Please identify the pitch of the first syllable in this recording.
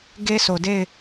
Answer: high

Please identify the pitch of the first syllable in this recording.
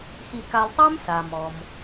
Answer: low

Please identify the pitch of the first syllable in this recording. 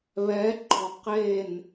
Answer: rising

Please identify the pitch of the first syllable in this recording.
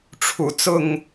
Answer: low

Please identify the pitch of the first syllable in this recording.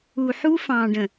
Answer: low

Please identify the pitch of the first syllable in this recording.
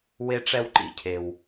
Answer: high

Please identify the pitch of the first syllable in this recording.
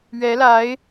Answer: rising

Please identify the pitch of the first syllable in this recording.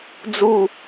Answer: falling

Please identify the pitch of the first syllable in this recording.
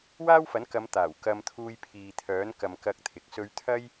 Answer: high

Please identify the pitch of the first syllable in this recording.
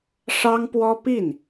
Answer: high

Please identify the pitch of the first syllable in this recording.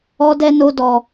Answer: high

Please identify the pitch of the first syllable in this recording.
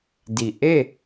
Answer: low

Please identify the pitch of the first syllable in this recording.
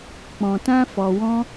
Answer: low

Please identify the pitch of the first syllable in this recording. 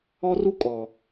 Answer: high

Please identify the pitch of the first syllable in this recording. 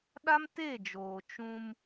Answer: high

